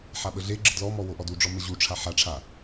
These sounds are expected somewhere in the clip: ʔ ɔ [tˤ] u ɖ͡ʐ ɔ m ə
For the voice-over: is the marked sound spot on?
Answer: no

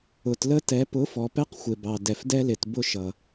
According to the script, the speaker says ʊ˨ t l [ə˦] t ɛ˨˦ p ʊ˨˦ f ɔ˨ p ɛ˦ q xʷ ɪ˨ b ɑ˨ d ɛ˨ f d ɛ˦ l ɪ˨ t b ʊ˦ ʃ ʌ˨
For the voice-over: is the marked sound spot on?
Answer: yes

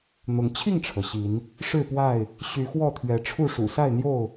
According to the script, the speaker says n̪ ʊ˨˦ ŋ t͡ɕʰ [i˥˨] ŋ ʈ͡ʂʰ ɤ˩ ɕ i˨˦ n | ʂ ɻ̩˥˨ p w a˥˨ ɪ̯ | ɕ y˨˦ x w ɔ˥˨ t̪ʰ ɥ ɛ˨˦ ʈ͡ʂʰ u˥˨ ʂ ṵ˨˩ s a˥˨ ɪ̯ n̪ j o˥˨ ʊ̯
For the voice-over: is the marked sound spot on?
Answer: yes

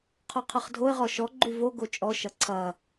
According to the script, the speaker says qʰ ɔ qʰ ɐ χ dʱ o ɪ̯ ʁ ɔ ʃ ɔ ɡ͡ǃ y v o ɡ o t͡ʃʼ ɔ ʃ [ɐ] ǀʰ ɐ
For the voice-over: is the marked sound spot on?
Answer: yes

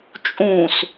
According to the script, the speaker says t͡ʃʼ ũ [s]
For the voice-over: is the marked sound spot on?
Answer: yes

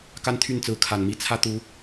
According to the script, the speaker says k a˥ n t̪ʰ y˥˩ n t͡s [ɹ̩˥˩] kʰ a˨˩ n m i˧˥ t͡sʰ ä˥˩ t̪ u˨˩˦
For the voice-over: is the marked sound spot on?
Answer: no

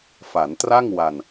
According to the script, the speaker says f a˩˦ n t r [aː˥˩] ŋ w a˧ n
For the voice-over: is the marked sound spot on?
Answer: no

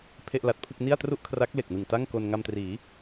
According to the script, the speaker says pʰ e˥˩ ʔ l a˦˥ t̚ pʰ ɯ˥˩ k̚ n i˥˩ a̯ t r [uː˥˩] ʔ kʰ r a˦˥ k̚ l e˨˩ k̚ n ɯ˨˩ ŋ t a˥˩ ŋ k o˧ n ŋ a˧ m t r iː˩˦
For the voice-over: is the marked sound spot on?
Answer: no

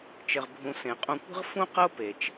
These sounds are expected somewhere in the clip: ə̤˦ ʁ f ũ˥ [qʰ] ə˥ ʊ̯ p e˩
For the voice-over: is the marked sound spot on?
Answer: no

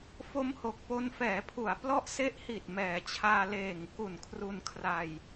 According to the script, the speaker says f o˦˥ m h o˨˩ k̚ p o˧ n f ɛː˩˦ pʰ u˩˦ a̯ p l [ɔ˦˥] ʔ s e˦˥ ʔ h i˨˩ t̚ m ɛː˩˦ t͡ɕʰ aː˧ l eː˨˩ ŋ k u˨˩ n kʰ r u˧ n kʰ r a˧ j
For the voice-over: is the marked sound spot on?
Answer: yes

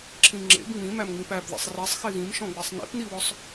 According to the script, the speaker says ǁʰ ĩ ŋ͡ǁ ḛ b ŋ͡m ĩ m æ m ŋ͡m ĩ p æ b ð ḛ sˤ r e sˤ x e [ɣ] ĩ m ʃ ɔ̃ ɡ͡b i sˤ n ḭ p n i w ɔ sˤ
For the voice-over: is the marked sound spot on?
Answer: yes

